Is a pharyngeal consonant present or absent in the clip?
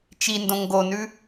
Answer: absent